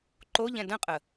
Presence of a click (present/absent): present